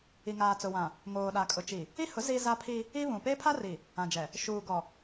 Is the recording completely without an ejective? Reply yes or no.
no